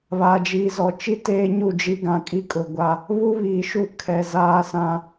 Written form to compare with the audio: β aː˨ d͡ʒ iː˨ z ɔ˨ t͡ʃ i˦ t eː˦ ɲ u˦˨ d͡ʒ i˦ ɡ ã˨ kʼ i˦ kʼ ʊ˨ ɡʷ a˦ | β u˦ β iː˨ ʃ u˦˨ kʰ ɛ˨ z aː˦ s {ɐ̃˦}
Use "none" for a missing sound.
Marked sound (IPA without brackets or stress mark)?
ã˦